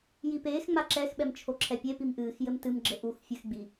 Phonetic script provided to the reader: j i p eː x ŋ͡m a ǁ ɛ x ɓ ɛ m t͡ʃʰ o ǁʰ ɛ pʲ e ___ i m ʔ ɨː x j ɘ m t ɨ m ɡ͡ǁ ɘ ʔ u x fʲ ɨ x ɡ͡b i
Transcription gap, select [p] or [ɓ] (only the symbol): p